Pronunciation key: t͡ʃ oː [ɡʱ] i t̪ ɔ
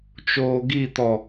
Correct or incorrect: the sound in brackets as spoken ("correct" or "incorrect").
incorrect